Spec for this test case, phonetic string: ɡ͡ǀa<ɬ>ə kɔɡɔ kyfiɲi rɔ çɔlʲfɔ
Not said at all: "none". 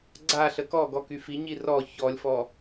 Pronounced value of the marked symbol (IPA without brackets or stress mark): ɬ